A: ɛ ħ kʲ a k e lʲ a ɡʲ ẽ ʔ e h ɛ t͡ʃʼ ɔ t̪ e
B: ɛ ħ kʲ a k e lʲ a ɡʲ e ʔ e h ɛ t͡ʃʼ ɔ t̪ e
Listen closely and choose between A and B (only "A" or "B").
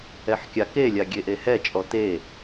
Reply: B